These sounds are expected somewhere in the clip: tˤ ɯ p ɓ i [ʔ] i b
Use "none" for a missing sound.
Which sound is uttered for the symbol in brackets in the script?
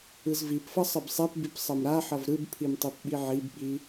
ʕ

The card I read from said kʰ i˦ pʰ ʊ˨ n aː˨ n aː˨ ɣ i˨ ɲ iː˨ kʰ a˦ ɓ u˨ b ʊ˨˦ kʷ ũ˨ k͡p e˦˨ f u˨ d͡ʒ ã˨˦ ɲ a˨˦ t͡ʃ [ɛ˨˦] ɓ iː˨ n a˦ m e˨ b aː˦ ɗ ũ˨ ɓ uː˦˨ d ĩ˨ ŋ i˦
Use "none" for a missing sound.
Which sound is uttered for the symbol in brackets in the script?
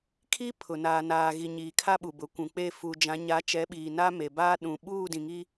ɛ˨˦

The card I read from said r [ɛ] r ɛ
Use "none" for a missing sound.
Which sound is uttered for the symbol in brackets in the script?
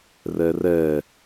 ɛ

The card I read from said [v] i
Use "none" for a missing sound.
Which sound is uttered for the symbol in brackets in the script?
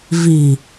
v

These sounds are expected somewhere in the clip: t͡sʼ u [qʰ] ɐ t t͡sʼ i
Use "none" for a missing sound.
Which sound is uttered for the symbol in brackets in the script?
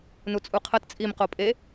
qʰ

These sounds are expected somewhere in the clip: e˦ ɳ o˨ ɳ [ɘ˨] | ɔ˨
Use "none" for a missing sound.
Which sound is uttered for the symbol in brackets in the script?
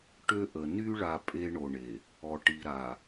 e˨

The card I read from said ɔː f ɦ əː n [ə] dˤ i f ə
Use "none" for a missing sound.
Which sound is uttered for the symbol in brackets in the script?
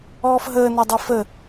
ɔ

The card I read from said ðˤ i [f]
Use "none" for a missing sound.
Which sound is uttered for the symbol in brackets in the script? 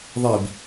b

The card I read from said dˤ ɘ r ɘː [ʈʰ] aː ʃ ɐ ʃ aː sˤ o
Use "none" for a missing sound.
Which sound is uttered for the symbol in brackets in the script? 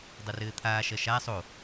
t̪ʰ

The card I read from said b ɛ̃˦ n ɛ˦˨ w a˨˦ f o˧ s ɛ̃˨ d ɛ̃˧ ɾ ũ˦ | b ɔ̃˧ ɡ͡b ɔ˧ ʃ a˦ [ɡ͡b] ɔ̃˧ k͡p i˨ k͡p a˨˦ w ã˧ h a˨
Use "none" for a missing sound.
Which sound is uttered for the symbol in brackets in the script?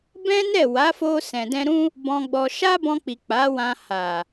b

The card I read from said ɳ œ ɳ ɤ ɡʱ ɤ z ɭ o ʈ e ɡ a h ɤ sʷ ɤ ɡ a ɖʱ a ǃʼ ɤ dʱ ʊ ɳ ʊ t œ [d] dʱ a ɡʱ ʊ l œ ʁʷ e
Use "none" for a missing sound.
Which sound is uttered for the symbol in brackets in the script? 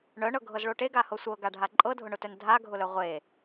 n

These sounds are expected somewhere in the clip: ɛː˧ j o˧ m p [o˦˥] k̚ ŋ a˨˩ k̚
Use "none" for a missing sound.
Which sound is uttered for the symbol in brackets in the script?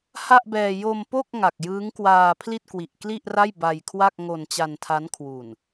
o˥˩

